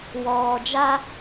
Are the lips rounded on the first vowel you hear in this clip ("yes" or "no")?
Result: yes